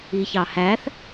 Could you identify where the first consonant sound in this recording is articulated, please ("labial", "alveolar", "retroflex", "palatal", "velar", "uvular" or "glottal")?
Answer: palatal